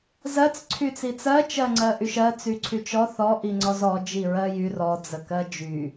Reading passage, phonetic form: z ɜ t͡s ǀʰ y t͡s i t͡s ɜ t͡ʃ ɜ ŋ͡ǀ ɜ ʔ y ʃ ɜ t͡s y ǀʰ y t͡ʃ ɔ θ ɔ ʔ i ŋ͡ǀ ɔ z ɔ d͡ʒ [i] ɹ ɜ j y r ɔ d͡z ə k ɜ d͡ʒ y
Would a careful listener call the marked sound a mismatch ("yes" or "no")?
no